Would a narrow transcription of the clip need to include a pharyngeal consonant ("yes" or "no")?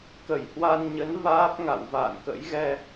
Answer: no